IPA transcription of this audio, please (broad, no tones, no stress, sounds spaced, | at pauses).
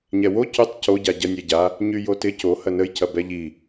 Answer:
ɲ ɛ w o c y tˤ c o ɟ a ɟ ɐ nʲ ɛ ɟ a | ɲ y j o t ɪ c o h ɐ n ə j c ɐ b ɛ ʎ i